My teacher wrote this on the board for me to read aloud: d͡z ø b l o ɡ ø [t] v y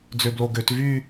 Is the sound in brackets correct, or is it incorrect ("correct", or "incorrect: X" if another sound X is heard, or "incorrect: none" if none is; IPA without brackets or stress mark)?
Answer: correct